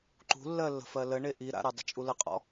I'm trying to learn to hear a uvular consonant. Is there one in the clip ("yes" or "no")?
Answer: yes